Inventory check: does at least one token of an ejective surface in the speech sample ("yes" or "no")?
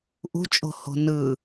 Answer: yes